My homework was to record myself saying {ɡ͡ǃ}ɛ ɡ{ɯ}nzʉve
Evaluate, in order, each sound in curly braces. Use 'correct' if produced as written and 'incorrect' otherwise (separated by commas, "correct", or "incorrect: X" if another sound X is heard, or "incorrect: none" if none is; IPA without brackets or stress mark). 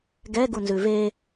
incorrect: ɡ, incorrect: u